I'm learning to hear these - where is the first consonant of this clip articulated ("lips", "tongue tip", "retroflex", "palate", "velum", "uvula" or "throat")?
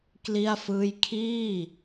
velum